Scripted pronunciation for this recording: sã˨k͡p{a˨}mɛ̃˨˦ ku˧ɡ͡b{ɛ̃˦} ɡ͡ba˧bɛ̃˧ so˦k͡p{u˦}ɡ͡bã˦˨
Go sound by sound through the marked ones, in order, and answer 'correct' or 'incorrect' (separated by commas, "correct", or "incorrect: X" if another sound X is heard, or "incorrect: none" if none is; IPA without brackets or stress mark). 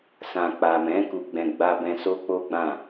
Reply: correct, incorrect: ɛ̃˧, incorrect: o˦